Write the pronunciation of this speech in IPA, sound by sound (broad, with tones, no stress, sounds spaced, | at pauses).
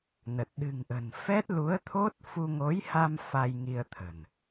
n ə˨˩ t̚ ɗ ɨ̤˨˩ ŋ ʔ ə̤˨˩ n f ɛ˦˥ t̚ l u˨˦ ə̯ t̪ʰ o˦˥ t̚ f u˧ ŋ o˨˦ j h a˧ m f a˧ j ŋ i˧ ə̯ t̪ʰ ə̤˨˩ n